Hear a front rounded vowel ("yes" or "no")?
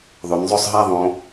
yes